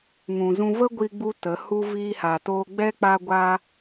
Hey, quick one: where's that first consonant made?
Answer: velum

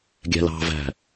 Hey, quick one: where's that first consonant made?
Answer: velum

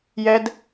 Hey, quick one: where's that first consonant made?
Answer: palate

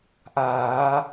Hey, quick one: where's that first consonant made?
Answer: throat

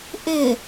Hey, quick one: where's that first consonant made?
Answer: throat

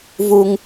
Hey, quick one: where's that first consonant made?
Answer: lips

